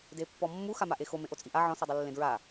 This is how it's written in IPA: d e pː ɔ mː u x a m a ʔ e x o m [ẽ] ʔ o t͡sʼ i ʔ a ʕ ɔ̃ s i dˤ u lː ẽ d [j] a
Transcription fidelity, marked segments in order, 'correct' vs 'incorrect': correct, incorrect: ɹ

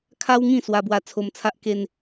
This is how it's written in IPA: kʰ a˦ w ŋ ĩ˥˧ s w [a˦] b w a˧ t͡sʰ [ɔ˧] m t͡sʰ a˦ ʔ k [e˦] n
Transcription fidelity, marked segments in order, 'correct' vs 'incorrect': incorrect: a˧, incorrect: o˧, correct

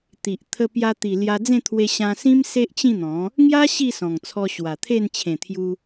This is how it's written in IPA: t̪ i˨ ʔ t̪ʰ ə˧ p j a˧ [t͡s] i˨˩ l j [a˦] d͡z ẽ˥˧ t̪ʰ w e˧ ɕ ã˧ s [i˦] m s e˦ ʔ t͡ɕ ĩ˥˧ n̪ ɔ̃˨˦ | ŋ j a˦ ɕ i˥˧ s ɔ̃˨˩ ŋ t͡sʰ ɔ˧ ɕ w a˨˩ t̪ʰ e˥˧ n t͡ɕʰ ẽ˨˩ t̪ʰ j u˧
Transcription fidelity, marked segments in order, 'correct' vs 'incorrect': incorrect: t̪, incorrect: a˧, incorrect: ĩ˦

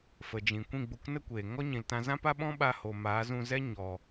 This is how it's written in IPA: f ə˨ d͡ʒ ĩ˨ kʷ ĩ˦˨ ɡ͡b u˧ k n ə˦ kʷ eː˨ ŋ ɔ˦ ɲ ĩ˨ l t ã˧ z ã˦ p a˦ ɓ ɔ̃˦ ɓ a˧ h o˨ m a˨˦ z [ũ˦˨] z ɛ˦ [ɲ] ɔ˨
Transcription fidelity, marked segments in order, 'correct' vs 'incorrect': incorrect: ũ˧, correct

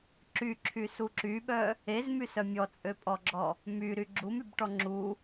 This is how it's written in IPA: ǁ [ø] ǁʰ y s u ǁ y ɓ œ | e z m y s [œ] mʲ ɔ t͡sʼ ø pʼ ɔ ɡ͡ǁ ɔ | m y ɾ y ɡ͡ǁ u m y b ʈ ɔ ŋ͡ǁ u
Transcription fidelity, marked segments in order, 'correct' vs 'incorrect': incorrect: y, correct

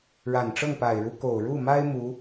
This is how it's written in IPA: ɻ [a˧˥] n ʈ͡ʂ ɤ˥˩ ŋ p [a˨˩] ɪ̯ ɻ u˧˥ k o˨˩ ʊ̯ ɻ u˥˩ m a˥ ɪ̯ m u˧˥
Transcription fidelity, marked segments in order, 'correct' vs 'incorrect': incorrect: a˨˩, correct

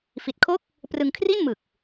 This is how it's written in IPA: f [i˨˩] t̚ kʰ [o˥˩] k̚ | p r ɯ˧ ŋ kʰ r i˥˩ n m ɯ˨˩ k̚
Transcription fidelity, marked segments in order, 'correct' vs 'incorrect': correct, correct

